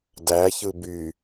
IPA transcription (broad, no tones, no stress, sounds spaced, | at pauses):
d æ ç ɯ b y